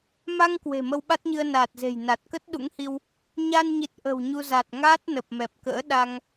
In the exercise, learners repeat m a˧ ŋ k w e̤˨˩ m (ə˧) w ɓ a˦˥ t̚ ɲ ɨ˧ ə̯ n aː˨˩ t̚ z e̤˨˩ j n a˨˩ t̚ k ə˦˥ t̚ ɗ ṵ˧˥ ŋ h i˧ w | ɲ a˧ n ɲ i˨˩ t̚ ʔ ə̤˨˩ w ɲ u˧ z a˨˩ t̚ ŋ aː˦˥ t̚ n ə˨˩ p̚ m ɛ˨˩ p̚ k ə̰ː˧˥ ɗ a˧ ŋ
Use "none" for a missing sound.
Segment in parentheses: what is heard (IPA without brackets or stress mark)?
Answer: ə˧